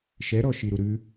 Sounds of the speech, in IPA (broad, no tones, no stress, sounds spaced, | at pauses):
ʃ ɛ ɾ ɔ ʃ i ɾ u ɾ ʉ